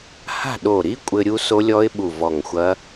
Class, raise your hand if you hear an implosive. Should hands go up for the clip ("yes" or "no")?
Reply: yes